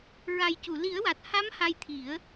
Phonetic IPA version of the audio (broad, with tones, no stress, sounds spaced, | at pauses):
ɹ a˨˩ j c u˨˩˨ l i˨˩˦ ə̯ w a˨˩ t̚ h a˧˥ m h a˧ j t̪ʰ i˨˩˦ ə̯